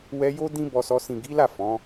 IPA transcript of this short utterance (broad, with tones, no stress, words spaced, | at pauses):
wɛ˧jo˦ dĩ˦bɔ˧sɔ˧ sĩ˨ɡi˨˦la˦˨ fɔ̃˨˦